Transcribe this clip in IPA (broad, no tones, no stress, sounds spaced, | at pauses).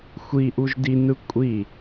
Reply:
xʷ i ʔ u ʒ d i n ɯ kʷʼ i